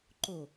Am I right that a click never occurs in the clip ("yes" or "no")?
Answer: no